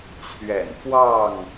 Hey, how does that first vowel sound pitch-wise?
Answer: low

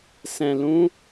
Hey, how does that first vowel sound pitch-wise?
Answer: low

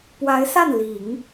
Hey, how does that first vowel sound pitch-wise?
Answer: rising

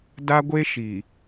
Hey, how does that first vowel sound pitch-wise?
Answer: high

